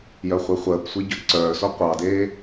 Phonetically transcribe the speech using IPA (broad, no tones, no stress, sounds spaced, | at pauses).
j œ χʷ i χʷ əː p sʷ e ɟ œ ǀ œː s o qʷ ɑ d eː